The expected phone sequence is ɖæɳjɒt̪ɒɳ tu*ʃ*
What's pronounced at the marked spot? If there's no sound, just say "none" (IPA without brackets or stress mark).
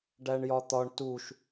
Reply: ʃ